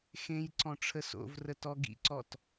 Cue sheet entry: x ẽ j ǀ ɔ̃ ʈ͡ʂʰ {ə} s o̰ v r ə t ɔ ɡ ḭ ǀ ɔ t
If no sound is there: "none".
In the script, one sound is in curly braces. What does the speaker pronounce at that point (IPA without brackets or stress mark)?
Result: ə